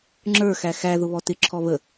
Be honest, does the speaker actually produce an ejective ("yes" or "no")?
no